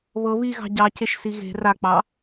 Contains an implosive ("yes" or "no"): no